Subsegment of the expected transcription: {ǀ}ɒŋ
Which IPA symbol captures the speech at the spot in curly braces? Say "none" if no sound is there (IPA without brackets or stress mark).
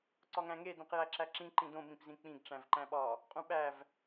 ǀ